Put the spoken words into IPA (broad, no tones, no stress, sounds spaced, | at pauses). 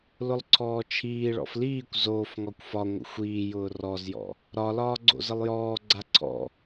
l ʊ lˠ ǀʰ ɔː t͡ʃʰ iː ɭ ɔ̰ f l iː kʷ z oː f ŋ ɒ kʷ f ɒ ŋʷ ə̰ xʷ iː j ʊː r ɔ z j ɔ̰ | ɾ ɒ l ɒː ɡ͡ǀ o̰ z ə lˠ j ɔː ɡ͡ǀ a ǀʰ ɔ̰